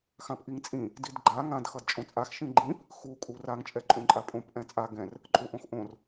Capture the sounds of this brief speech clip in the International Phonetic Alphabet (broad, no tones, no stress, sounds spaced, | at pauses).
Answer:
x ã p ʔ i ŋ t͡sʼ ĩ | d i d ɡ͡ǃ a ŋ ã d x ʌ d t͡ʃʼ õ t͡sʼ a x ʃ ĩ ɡ͡ǃ ĩ p | x u kʼ u r a ŋ t͡ʃʼ ɛ ǃʼ ũ ǃʼ a pʼ õ p ʔ ɛ̃ t͡sʼ a ɡ ɛ̃ r | ǃʼ u ʔ õ x ʔ õ r